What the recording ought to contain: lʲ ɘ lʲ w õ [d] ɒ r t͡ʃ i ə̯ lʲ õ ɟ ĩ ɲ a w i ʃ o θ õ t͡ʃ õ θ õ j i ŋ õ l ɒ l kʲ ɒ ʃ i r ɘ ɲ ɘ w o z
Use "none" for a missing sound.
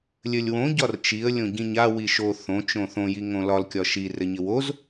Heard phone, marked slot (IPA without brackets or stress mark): ɟ